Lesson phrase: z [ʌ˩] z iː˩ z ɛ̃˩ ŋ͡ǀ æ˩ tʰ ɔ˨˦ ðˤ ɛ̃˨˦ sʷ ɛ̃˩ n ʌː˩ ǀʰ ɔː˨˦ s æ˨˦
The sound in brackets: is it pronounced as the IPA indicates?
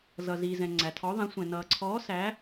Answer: yes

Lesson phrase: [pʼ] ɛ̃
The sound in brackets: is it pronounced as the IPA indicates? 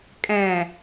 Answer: no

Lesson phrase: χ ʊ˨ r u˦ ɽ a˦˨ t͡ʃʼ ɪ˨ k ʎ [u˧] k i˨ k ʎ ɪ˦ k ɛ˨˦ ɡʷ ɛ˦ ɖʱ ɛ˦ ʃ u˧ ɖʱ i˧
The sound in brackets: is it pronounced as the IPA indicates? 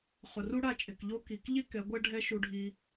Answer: no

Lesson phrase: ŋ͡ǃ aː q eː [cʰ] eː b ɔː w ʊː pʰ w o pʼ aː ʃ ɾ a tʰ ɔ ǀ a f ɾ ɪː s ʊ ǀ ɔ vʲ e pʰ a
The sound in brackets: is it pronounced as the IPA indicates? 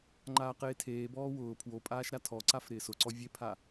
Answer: no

